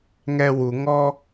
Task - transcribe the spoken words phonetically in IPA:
ŋ ɛ w u ŋ ɔ

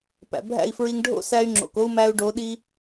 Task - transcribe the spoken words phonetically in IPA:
p æ̰˨ bʱ æ̰˦˨ i̯ f ɹ i˧ ŋ ɖʱ o̰˦ s æ˧ y̯ ŋ͡ǁ o̰˨ k o˦ u̯ m æ˧ u̯ ɖ o˨˦ ɗ i˦

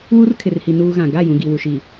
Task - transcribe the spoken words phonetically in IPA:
w u˦ r kʰ ɪ˨ r h i˨ n uː˦ ɣ ã˨ ɡ a˦˨ j ũ˨ ɡ i˨ w u˨ ʃ iː˨

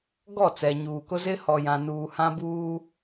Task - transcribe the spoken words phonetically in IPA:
ɡ ɔ˦˨ t͡s ɛ˨ ɲ uː˨ k ʊ˦ z ɪ˦ h ɔ˨ j ã˨ n uː˨ h ã˦ b uː˦

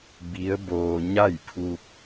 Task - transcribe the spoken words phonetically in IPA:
b i˧˥ ə̯ b oː˧ ɲ a˥˨ j pʰ u˧ k̚

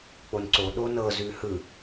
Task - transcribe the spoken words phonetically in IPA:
k͡p o n ǀ o ɗ o n ɤ z ʉ h ɯ

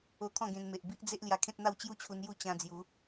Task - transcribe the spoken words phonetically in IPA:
o˧ t̪ʰ ɔ̃˥˧ ɡ ẽ˧ n m e˨ ʔ b i˦ ʔ d͡z e˦ ʔ l j a˧ kʰ ẽ˦ t̚ n̪ a˥˧ w t͡ɕ j u˥˧ t͡ɕʰ u˧ n j u˥˧ t͡ɕ ã˧ d͡z j u˨˦

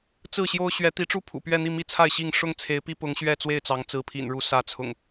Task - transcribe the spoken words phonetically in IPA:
t͡s ɹ̩˥˨ ɕ j o˦ ʊ̯ ɕ ɥ ɛ˨˦ t̪ i˨˦ ʈ͡ʂ u˥˨ pʰ ṵ˨˩ p ɥ ɛ˥˨ n̪ i˥˨ m i˥˨ t͡sʰ a˥˨ ɪ̯ ɕ i˥˨ ŋ ʂ ʊ˥˨ ŋ t͡sʰ e˨˦ ɪ̯ p i˦ p ʊ˨˦ ŋ ɕ ɥ ɛ˥˨ t͡s w e˥˨ ɪ̯ t͡s ɑ˨˦ ŋ t͡s ɹ̩˨˦ pʰ ḭ˨˩ n ɻ u˨˦ s ä˨˦ t͡sʰ ʊ̰˨˩ ŋ

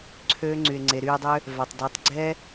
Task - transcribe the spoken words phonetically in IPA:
ǀʰ øː˦ ŋ͡ǀ y˨ e̯ ŋ͡ǀ e˨ ɾ yː˧ dˤ ø˦ | v a˨ tˤ d y˨˦ tˤ ɡ͡ǀ ɛ˦

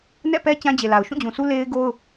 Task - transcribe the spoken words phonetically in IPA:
n ɛ̰˦˨ p ɛ˦ t͡ɕ ã˦ d͡ʑ e˨ l a˨ ʊ̯ ʃ ũ˦˨ d͡ʑ ũ˨ s u˦ l e˦ ɪ̯ ɡ o˦ ʊ̯

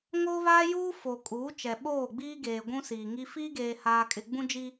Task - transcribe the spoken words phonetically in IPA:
ŋ oː˦ β aː˦ j uː˦ f o˨ kʼ uː˨˦ t͡ʃ ɛ˨ ɓ oː˦˨ ɡ͡b iː˦ ɡ eː˨ ɡʷ ũ˦ s iː˨ ŋ i˦ f iː˦ ɡ eː˨ h aː˨ kʼ ɪ˨ ɡ͡b ũ˦ d͡ʒ i˦

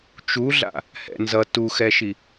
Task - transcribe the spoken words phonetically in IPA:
t͡ʃ u ɮ a̰ | h ɛ̰ n z ʌ t u x ɛ ʃ i

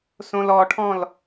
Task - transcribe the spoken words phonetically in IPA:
s õ l ɔ ʈʰ ɔ̃ l

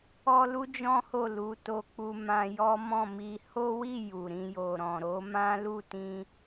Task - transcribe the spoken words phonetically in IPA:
ɔ˦ l u˦ d͡ʒ ɔ̃˦ h o˦˨ l u˨˦ t o˧ k͡p u˧ m ã˧ j ɔ˦ m ɔ̃˦˨ m i˧ h o˦ w i˦˨ j u˨ ɾ ĩ˧ j o˨ ɾ ɔ̃˨ ɾ o˧ m ã˦ l u˦˨ t ĩ˧

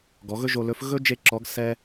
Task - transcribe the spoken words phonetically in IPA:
ɡ ɔ˩˧ ɣ ɵ˥ ʒ o˧ l ɵ˧˥ f ɣ ɵ˥ d͡ʒ e˥ ǁ ɔ˧˥ ɡ s ɛ˥

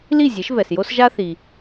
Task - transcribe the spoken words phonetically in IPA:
l i˥˩ zʲ e˩˥ ʃ v ɛ˩ s j o˥ s ʒ a˥ θ i˩

